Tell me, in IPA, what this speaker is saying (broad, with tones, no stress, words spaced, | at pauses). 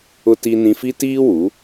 ʊ˦ti˦nĩ˦ fi˦tiː˦wu˨˦